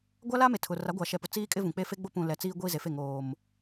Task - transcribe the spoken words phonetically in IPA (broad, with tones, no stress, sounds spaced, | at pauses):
ɡʷ a˦ l a˦ m e˨ tʰ ʊ˨ r a˨˦ ɡʷ a˨ ʃ ɛ˨ p ʊ˨ t͡s iː˦ kʼ ɪ˦ v ũ˨ k͡p e˦ f e˦ ɡ͡b o˦ p ũ˨ l ɛ˨ t͡s iː˦ ɡʷ iː˦ z e˨ f e˦˨ ŋ oː˨ m